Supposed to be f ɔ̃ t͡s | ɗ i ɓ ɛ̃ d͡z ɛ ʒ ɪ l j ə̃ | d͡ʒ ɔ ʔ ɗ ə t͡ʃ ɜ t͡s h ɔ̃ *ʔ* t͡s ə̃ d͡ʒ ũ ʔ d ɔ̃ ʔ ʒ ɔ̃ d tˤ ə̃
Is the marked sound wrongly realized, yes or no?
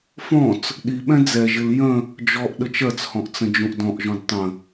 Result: no